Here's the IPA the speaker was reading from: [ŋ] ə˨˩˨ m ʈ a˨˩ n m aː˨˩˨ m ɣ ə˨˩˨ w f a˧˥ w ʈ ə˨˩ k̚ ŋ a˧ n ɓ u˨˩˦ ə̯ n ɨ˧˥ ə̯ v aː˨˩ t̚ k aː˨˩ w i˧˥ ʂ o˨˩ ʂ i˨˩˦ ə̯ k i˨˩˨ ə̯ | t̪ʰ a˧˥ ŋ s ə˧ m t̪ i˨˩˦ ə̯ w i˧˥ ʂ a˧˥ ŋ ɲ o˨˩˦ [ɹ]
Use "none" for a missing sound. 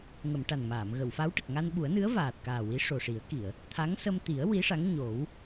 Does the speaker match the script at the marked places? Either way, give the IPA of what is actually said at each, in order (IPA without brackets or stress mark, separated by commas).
ŋ, w